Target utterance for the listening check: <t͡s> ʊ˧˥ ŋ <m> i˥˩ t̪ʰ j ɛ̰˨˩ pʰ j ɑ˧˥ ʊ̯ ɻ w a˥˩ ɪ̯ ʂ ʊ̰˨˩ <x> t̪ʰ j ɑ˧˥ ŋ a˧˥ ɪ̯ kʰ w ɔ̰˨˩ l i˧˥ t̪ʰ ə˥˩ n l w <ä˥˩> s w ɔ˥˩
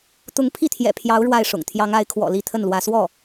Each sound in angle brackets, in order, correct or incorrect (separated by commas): incorrect, incorrect, incorrect, incorrect